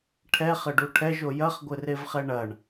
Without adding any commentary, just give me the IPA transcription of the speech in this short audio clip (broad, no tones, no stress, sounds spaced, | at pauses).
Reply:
ʈʰ ɛ χ ɘ ɖ u ʈʰ ɛ ʒ o j ɐ χ ɡʷ ɘ r e v χ ɛ ɳ ɐ ɳ